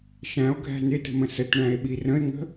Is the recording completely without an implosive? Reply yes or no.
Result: no